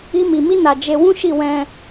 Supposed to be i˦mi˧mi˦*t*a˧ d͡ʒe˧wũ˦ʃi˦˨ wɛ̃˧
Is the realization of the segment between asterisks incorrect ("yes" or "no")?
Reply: yes